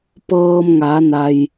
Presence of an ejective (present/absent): absent